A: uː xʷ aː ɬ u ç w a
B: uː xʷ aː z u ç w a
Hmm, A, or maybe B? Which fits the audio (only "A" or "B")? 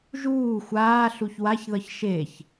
A